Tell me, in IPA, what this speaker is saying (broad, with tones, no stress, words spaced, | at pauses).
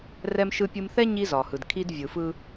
rɛ˦mʃɯ˦pʲɯ˦m θɛ˦ ɲi˦zɒ˨hɯ˨dkʰi˦d vʲɯ˨fɯ˦